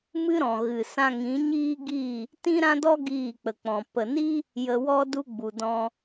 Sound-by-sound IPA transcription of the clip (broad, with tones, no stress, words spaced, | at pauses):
mɨ˦ɾɔ̃˨ ɣɨ˨sã˧ŋĩ˨˦ ɲiː˦ɡi˦˨ | tĩ˦ɾã˦dɔ˦ ɡiː˦˨k͡pə˨k͡pɔ̃˨ pə˨ni˦ | jə˧wɔ˦ du˦ɡ͡bu˨dɔ̃˧